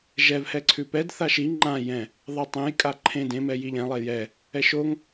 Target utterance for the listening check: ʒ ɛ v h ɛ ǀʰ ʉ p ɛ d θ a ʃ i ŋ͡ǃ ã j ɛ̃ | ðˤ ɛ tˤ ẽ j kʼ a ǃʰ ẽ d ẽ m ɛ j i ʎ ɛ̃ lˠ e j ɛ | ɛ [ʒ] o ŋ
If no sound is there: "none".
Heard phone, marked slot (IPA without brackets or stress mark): ʃ